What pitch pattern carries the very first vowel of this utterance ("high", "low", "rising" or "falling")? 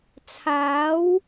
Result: rising